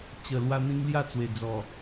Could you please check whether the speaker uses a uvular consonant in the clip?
no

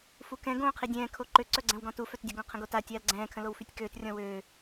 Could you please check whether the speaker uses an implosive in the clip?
no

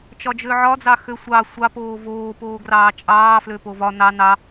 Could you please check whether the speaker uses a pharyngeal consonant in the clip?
yes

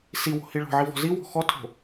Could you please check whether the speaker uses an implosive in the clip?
no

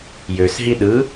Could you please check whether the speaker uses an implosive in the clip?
yes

